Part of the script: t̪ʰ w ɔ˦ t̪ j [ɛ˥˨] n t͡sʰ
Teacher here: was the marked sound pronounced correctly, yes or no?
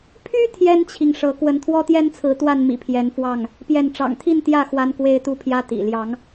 no